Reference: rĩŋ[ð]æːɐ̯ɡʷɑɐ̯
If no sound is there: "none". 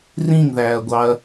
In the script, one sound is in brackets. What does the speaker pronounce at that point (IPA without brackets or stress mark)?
ð